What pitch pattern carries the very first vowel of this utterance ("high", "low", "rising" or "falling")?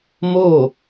falling